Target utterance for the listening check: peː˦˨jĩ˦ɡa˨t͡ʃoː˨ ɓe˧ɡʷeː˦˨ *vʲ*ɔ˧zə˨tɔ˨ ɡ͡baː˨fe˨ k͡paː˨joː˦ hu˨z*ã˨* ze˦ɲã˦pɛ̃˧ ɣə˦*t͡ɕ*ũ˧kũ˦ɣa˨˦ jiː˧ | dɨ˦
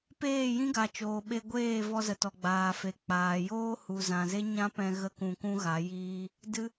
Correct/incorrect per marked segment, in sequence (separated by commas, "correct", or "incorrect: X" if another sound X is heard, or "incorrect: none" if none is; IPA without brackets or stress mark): incorrect: v, correct, incorrect: k